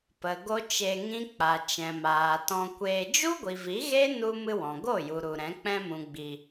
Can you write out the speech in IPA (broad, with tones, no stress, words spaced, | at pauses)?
pə˨ ɡo˦t͡ʃe˧ŋĩ˦ k͡pa˨ t͡ʃɛ̃˨maː˨tɔ̃˧kʷeː˧ d͡ʒu˦ɡʷi˨vi˨˦ ɣe˦nu˧ mɨ˧wɔ̃˨ ɡo˦˨ju˨ ɾu˨ɾɛ̃˨˦ k͡pɛ̃˧mũ˨ɡ͡bi˨